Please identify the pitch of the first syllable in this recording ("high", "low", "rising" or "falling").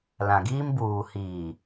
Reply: low